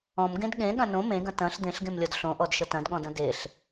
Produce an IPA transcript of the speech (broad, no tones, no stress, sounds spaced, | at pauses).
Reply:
ɔ̃ m ɡ ẽ d ɠ ẽ ɠ ɐ̃ n õ m ẽ ɡ ɐ̃ t ɐ̃ ɬ d̪ ẽ ɬ ɡ ẽ m lʲ ɔ d ɬ õ ʔ ɔ d ʃ ə t ɐ̃ d ɠ ɔ̃ d ɐ̃ d e ɬ